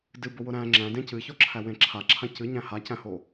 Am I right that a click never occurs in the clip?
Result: no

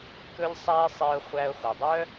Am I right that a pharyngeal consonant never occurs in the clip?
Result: yes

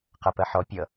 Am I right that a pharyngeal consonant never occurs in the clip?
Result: no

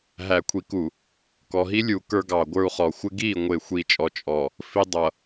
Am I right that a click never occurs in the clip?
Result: yes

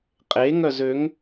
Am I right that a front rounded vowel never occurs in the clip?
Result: no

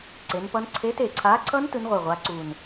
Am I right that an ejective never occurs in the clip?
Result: yes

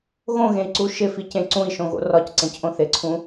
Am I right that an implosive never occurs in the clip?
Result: yes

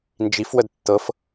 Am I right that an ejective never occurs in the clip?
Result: yes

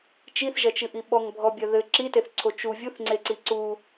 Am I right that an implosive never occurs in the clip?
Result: no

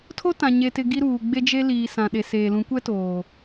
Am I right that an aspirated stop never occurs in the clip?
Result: no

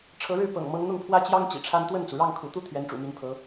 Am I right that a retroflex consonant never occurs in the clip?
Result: no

